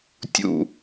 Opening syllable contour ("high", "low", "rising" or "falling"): low